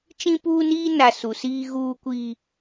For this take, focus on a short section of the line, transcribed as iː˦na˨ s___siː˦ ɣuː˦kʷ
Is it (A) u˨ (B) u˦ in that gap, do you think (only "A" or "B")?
A